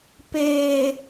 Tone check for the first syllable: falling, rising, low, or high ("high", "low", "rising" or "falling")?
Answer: low